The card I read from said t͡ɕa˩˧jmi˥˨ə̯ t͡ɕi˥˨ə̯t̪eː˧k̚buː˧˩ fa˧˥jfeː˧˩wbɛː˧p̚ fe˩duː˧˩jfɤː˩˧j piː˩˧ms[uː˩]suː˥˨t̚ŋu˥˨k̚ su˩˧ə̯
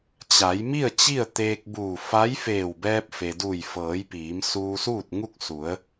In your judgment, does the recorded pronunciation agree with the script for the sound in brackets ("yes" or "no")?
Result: no